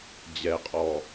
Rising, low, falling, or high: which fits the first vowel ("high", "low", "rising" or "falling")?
low